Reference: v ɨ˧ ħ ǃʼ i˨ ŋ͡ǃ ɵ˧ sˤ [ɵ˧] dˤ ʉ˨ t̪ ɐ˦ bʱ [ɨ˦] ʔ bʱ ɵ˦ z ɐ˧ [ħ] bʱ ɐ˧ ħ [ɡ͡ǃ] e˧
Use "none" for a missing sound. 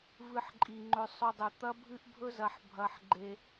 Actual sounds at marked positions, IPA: ɵ˧, ɨ˦, ħ, ɡ͡ǃ

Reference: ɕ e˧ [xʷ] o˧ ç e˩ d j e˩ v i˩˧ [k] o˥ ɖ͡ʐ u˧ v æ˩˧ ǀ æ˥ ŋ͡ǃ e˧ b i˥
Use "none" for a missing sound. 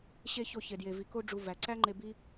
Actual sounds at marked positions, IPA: ç, k

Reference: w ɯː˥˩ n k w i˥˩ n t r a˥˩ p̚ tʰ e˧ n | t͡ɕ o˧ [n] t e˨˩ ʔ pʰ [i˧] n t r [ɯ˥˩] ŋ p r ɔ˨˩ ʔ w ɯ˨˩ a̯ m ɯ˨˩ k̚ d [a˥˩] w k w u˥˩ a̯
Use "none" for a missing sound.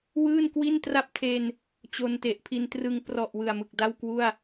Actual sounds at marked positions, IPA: n, i˧, ɯ˧, a˥˩

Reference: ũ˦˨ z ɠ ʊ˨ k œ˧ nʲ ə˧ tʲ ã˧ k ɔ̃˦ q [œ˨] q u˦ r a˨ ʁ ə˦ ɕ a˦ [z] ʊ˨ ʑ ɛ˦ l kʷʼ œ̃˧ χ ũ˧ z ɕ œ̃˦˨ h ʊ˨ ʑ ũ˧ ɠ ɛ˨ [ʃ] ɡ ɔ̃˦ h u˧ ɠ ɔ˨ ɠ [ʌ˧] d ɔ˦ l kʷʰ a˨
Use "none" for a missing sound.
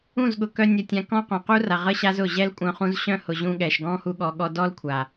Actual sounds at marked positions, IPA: œ̃˨, z, ʃ, ɔ˧

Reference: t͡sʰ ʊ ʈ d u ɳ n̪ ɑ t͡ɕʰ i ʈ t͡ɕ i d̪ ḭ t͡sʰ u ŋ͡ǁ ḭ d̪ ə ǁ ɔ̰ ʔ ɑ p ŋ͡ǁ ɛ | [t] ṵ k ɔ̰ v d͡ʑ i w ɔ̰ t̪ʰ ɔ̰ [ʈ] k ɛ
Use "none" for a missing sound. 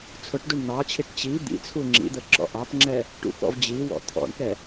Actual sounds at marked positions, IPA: ʈ, ɳ

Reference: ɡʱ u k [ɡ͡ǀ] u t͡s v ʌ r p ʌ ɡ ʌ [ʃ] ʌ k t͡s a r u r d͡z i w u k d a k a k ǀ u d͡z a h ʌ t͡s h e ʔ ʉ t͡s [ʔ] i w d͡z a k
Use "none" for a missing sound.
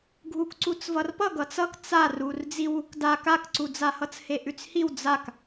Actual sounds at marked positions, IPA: ǀ, t͡s, h

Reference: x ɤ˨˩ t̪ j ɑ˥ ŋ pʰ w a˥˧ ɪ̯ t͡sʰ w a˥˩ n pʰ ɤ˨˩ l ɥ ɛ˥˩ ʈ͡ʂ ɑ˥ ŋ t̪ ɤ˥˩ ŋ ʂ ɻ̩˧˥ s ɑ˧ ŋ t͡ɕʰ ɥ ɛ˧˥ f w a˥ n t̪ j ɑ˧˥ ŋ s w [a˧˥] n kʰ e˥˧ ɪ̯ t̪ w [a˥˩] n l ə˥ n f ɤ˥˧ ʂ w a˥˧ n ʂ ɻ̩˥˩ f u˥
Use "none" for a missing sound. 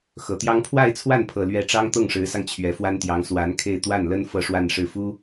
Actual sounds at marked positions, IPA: a˧˥, a˥˩

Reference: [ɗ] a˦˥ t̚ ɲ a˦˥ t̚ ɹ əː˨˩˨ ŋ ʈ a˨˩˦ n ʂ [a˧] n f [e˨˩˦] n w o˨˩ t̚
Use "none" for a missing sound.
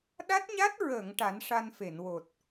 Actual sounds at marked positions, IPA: ɗ, a˧, e˨˩˨

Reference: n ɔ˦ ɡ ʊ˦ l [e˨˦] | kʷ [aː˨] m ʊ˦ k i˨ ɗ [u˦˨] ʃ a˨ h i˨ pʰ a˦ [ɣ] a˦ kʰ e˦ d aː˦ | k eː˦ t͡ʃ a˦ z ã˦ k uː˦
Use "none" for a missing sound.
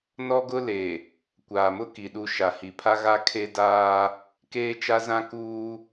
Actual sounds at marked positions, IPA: e˨, aː˨, u˦˨, ɣ

